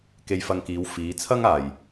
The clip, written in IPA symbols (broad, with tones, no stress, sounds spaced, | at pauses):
k e˧ j f ɐ˧ ŋ k iː˨˧ w f iː˨˧ t͡sʰ ɐ˥ ŋ aː˨ j